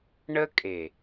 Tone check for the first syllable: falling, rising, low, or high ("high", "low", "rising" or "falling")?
high